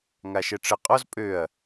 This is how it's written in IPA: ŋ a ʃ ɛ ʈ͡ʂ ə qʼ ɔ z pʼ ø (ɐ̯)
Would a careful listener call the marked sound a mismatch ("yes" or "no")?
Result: no